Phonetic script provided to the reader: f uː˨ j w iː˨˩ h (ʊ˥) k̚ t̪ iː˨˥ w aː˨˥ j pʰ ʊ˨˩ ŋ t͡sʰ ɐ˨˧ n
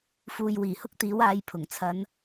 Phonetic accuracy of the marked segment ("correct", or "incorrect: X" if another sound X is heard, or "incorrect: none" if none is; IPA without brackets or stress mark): correct